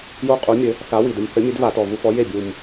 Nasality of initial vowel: oral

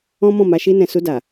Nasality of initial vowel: nasal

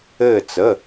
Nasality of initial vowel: oral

